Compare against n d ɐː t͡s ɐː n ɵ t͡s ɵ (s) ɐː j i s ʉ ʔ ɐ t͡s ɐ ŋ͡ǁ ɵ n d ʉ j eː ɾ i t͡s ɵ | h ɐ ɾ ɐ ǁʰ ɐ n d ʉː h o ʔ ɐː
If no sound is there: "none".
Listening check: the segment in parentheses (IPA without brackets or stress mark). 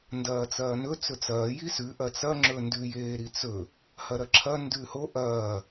t͡s